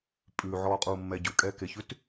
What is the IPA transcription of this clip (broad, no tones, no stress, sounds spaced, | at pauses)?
pʼ ʉ ʕ ɔː qʼ uː mː ɛ ɟ ʉ kʼ ɛː k e ç ʉ t